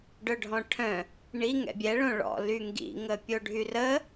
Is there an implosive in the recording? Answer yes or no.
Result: no